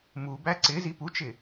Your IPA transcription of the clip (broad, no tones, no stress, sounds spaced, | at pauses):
m u b æ ǀ ɪ z i p u t͡ʃ ɪ